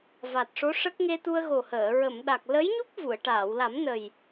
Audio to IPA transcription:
v a˨˩ t̚ ʂ o˧˥ ʂ ə˦˥ k̚ ŋ e˧ t̪ u˧ ə̯ ɣ o˨˩ h əː˨˩˨ ɹ ə˨˩˨ m ɗ a˨˩ k̚ l ə˧˥ j ɲ u˦˥ k̚ v u˨˩˨ ə̯ ʈ aː˨˩˨ w l a˨˩˦ m n ə˨˩ j

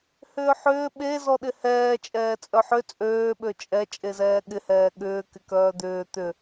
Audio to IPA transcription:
h ʏː ħ ʏː ɓ e z ɔ ɗ ɪ h ɛː t͡ʃʼ ɛː t͡sʼ œ ħ ʏ t͡sʼ øː ɓ ø t͡ʃʼ ɛ t͡ʃʼ e z ɛː ɠ ɪ h ɛː ɠ ʏː k ɪ k œː d̪ ʏː t̪ ʏ

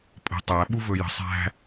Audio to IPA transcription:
pʼ ə̤ tˤ æ ɓ u v ɵ j ə̤ sˤ æ̤

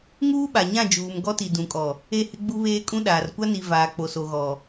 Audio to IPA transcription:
ŋ uː˦ ɓ a˨ ɲ ã˦˨ d͡ʒ uː˨ m ɡ ɔ˦ t i˨ d ũ˨ kʼ ɔ˨ | e˦˨ h ɪ˦ ɡ͡b u˦ β eː˦ kʼ ũ˦ ɗ aː˨ r kʷ a˦ n i˨ v aː˨ k͡p o˨ s o˨ ɣ ɔ˨

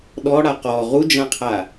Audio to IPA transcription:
ɗ ɔ ɽ a q ɔ ʁ u d͡ʒ ã qʰ a

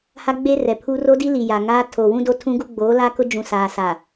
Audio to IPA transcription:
h a˦ ɡ͡b e˦ r ɛ˨ pʰ u˦ r o˦ d i˦ l i˨ j a˨ ŋ aː˦ tʰ o˨ w ũ˦ d o˦ tʰ ũ˦ ɡ u˦ ɡ͡b oː˨˦ l a˦ k ʊ˦ d͡ʒ ũ˨ s aː˨ s a˨

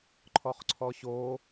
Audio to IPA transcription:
ǃʰ ɔ χ ǀʰ ɔ ɕ o

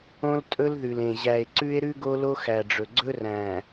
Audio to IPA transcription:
õ˦ l tʼ ɵ˦ l ð ʉ˨ l ẽ˨ ʑ æ˨ e̯ ǀ ʉ˦ e̯ ɾ ʉ˦ ɡ o˦ l o˦ x æ˨ ɖ͡ʐ ɵ˨ ɡ͡ǀ ɵ˦ r æ̃˨

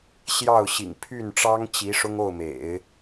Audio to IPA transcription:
ɕ j ɑ˥˩ ʊ̯ ɕ ḭ˨˩ ŋ pʰ y˥˩ n ʈ͡ʂ ɑ˥ ŋ t͡ɕ i˧˥ ʂ ʊ˥ ŋ o˥˩ ʊ̯ m ḛ˨˩˦ ɪ̯

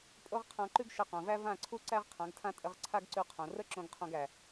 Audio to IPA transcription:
pʼ o˦ ʁ qʰ ã˧ ǃ ʉ˦ ɡ ʃ ə˧ q õ˨ v æ˦ v ã˦˨ ǀʰ u˦ ǀ æ˦ ʁ qʰ ã˨˦ ɡ tʰ ã˦ tʼ ə˧ ʁ ǀʰ a˦ ɡ ǀ ʉ˧ qʰ õ˨ r ə˦ ǁ õ˧ ɡ qʰ õ˧ ɡ æ˨

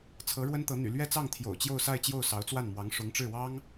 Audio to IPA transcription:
t͡sʰ ɤ˧˥ ɻ w ə˥ n t̪ ɤ˧˥ n̪ y̰˨˩ l ɥ ɛ˥˧ t͡s ɑ˥˩ ŋ t̪ʰ j o̰˨˩ ʊ̯ t͡ɕ j o˥˧ ʊ̯ s a˥˧ ɪ̯ t͡ɕ j o˥˩ ʊ̯ s ɑ˧˥ ʊ̯ t͡s w a˥˩ n m w ɑ˧˥ ŋ ʂ ʊ˧˥ ŋ ʈ͡ʂ ɻ̩˥˩ w ɑ˥ ŋ

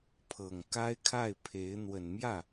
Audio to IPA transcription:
pʰ ɤ˨˩ ŋ k a˥ ɪ̯ kʰ a˥˩ ɪ̯ pʰ e˧˥ ɪ̯ n̪ w ə˨˩ n m j ä˥˩

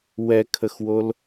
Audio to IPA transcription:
w ɛ kʰ ə x w o l

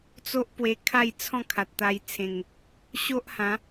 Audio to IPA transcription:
t͡s o˦ ʔ p w e˧ kʰ a˥˧ j t͡sʰ ɔ̃˥˧ kʰ a˨ t̚ t̪ a˧ j t͡sʰ ẽ˨˩ ŋ | ɕ o˦ ʔ h ã˨˦

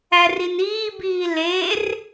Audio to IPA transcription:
æ r i n iː b iː l e r

